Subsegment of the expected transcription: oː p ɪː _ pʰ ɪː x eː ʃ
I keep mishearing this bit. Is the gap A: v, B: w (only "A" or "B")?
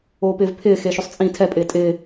A